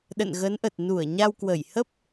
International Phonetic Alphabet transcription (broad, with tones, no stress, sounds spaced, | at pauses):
ɗ ə̰˧˨ n ɣ ə˨˦ n ʔ ə˨˩ t̚ n u˧˩ ə̯ ɲ a˧ w k w ə˧˩ j h ə˦˥ p̚